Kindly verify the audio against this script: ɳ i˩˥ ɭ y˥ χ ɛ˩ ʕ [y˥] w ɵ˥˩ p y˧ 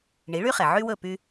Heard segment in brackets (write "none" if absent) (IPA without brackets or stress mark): y˥